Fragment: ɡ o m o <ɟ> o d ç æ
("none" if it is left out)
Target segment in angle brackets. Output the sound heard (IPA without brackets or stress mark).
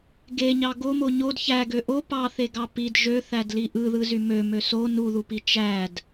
ɲ